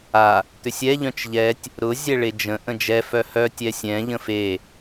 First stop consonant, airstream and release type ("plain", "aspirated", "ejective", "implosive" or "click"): plain